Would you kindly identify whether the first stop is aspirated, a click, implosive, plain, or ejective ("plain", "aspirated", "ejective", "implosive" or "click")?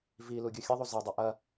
plain